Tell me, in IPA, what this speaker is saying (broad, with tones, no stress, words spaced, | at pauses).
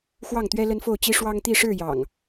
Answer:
xwɑ˥˨ŋt̪ɥɛ˦ lə˦nfo˥˨ʊ̯t͡ɕi˦ ʂwɑ˦ŋt̪i˥˨ ʂɻ̩˥˨jɑ̰˨˩ŋ